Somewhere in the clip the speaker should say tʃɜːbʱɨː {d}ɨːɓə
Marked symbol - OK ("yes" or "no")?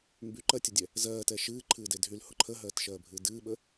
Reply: yes